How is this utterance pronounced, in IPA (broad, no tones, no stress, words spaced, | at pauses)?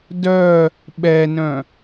dœ | ɓɛnœ̃